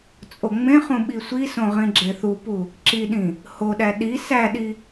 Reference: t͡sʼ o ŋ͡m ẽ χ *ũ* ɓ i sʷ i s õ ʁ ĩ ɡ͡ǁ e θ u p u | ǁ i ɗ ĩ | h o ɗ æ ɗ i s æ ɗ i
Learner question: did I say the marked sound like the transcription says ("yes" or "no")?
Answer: yes